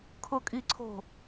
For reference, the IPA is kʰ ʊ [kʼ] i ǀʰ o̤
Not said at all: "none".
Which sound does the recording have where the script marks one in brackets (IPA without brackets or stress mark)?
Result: kʼ